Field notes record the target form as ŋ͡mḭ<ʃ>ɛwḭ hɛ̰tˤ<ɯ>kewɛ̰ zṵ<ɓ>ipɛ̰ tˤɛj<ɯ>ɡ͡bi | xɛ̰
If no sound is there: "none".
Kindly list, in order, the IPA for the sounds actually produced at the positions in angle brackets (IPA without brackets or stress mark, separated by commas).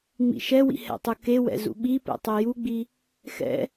ʃ, ɯ, ɓ, u